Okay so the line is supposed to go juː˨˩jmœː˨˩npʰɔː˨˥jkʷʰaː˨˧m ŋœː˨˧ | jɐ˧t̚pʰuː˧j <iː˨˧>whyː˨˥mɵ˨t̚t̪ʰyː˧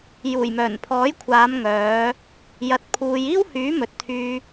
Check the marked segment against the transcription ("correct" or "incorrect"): incorrect